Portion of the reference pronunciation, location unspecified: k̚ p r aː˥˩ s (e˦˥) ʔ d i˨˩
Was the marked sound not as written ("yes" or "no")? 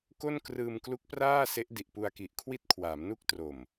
no